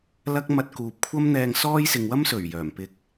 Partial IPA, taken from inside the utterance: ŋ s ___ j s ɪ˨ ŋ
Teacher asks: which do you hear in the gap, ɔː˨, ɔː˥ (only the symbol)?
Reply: ɔː˥